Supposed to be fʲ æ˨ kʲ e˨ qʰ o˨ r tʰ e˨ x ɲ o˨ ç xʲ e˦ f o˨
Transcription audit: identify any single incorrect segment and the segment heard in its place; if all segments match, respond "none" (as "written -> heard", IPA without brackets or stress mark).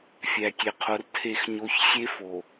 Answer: none